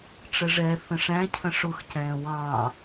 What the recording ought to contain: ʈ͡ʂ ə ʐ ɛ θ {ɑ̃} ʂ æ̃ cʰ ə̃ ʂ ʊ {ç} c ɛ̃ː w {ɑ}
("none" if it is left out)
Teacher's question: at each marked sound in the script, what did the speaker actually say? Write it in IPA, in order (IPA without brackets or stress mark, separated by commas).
ə̃, x, ɑ̃